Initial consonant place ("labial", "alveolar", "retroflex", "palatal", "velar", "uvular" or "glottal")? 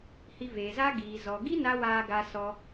glottal